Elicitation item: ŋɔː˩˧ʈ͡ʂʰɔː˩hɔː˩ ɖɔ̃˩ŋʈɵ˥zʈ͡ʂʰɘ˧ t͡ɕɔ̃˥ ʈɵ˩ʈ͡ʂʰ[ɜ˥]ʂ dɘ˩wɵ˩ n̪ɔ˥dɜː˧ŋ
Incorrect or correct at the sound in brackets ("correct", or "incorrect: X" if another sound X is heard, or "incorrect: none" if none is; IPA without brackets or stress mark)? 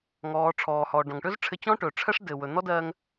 correct